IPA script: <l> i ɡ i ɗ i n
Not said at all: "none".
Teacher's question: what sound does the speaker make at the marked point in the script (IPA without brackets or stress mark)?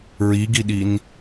ɹ